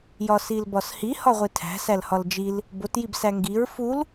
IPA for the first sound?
j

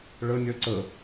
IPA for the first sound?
ɭ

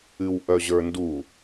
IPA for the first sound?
ɨ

